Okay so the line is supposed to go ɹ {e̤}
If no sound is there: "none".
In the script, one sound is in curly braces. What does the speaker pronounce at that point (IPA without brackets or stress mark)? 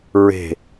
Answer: e̤